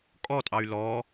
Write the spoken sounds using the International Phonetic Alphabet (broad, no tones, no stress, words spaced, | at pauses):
kʼɔtʼɑy̯ lɔ